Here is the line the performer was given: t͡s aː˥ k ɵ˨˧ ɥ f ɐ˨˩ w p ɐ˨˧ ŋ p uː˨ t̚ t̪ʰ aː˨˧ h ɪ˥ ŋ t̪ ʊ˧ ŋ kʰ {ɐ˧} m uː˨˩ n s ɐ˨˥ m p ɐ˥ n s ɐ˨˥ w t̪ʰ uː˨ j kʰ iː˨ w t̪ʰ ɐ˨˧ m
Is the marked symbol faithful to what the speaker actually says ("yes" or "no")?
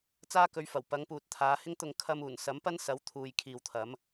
yes